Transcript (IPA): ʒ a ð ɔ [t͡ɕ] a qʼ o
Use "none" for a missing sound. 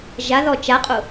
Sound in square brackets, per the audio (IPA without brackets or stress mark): t͡ʃ